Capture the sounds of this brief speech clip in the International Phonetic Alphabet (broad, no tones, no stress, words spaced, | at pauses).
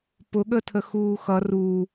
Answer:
pʊ ɠətʰəxuːxʌ ru